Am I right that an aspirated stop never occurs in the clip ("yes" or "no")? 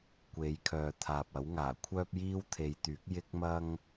no